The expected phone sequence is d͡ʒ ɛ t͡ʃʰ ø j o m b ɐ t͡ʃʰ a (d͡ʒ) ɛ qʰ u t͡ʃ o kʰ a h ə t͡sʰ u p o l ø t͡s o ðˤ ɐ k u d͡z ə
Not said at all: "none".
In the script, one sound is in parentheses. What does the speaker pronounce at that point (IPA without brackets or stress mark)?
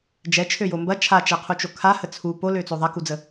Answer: t͡ʃ